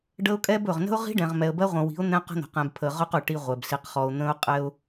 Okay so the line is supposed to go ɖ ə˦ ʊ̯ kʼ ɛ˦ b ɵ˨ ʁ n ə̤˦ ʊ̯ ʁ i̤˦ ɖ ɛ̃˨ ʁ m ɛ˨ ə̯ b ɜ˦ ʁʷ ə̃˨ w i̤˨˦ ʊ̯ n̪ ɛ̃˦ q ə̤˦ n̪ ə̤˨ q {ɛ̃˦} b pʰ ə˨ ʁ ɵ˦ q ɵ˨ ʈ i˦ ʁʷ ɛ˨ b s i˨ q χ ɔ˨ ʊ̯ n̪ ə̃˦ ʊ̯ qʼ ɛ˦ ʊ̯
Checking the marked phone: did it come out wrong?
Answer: yes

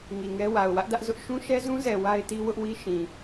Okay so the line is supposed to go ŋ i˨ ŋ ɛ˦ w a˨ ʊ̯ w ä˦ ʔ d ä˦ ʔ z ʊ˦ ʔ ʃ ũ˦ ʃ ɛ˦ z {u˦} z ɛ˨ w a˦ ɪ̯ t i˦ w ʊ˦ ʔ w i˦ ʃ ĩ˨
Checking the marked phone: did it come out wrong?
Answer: yes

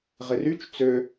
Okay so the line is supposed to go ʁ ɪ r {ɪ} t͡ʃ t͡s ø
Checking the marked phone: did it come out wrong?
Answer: yes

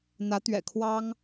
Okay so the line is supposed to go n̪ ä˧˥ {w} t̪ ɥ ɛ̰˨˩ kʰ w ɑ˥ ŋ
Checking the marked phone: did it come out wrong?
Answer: yes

